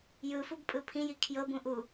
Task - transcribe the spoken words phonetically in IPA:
jɯfub pʼɯpʰĩji kʰjɤbũ ʔu

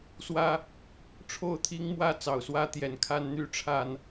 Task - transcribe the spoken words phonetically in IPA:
swä˦ | ʈ͡ʂʰo˥˨ʊ̯t̪ʰi˦ŋmwä˥˨ t͡sɑ˨˩ʊ̯swä˦ t̪jɛ˨˩nkʰa˦n n̪y˨˦ʈ͡ʂʰa˨˩n

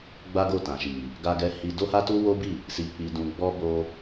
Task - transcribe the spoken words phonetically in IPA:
ɡ͡ba˦ɡo˦˨ tã˨ʃi˨ | ɡa˦ɡɛ˦hi˦ do˦ha˦ tu˦wo˦bi˦˨ | si˧k͡pi˧ dũ˧ɡ͡bɔ˦ bo˦

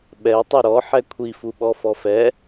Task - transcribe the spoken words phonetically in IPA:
ɓɛ tˤyɾɔ ħɛkʷʰifuɓɔ fɔfɛ

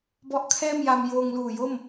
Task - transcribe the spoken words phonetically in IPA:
bɔ˦˥ʔkʰɛː˥˩mja˧m joː˧ŋluː˨˩jo˥˩m

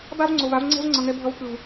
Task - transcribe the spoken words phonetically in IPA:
ba˦vŋ͡ǀo˨va˧v ŋ͡ǀɛ̤˦vŋ͡ǀʌ˨ŋɛ˧bʱʌ˧v kɯ˨v

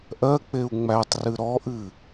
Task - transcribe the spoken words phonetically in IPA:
ʔɜk͡peu̯ ŋ͡mætˤrɨ ɾɔʔɨ

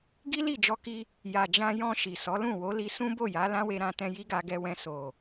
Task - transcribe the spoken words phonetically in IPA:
ɡi˦li˦˨d͡ʒɔ˧ki˧ | ja˨d͡ʒã˧jɔ̃˧ ʃi˨sɔ˨˦ lũ˦˨wo˨˦li˧ sũ˦bo˦˨ja˨˦ lã˦we˧ɾã˧tɛ̃˧ ji˦ɡa˧ɡɛ˧wɛ̃˧ so˨

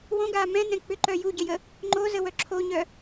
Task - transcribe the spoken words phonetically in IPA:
wõɡaː mɛ̃nɛ̃ k͡pʏǃœ juɟəjə | ŋ͡ǃozəwœ ǁʰoɲœ

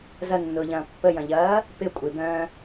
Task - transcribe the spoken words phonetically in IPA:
zɐnːʊːʎɐ̃ː pːəjɐ̃ʎɐː | pɪ kʷʼɪbœ̃ː

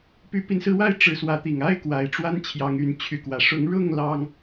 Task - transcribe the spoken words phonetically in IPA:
py˨˦pi˨˦nsɹ̩˧wa˥˨ɪ̯ ʈ͡ʂɻ̩˨˦swä˨˦t̪i˨˩ŋ a˦ɪ̯kwa˨˩ɪ̯ʈ͡ʂwa˦n t͡ɕʰjɑ˨˦ŋy˨˦nt͡ɕʰy˨˦kwä˨˩ ʂʊ˨˦ŋɻʊ˥˨ŋ lɑ˦ŋ

